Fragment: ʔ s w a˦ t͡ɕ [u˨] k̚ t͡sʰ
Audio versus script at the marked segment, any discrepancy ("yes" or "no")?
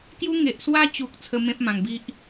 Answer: no